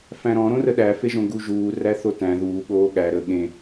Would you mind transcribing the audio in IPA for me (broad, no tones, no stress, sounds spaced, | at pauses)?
f æ̃ ɾ ɔ̃ ɾ õ r ə ɗ æ f e ʒ õ ɡ u ʒ uː r æ θ o t æ̃ ð uː ɠ oː ɠ æ ɾ ə ɠ ẽ